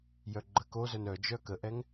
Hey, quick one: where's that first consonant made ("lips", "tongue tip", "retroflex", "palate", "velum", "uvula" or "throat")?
palate